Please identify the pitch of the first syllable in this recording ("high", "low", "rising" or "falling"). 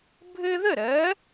high